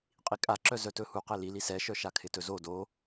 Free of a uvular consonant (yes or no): no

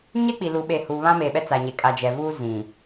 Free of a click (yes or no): yes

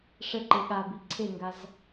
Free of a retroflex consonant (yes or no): no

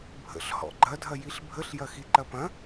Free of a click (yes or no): no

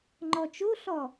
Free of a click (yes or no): no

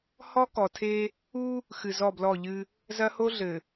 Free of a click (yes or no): yes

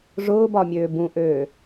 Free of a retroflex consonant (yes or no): no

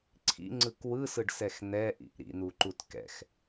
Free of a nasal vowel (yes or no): yes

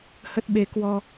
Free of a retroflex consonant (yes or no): yes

